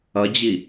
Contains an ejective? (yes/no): no